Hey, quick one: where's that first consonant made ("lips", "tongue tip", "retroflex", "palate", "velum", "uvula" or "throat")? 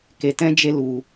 velum